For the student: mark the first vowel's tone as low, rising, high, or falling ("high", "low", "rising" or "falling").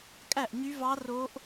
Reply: falling